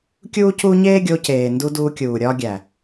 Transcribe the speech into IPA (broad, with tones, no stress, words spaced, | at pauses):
kʲuː˦cuː˦ ɲeː˦ɡʲo˧ceː˨ndu˧ duː˧kʲuː˨ ɾʲɒː˧ɡʲæ˨